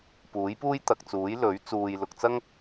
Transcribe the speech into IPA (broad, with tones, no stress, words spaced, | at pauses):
puː˨˥jpuː˥jt̪ɐ˨k̚t͡suː˨˥j lɵ˨˥ɥ t͡suː˨jlʊ˨k̚t͡sɐ˥ŋ